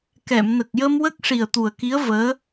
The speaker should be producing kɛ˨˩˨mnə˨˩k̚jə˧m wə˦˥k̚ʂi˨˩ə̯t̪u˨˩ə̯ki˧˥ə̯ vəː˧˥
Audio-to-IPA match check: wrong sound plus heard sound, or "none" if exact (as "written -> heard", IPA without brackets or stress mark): none